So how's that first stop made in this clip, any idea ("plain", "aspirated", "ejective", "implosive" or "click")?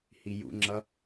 click